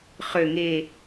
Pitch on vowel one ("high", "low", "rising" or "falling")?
low